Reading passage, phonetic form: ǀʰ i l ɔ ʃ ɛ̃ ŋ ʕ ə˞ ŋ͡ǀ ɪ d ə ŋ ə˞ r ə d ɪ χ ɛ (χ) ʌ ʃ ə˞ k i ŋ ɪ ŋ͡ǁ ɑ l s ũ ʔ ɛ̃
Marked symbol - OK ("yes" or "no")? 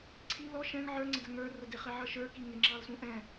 no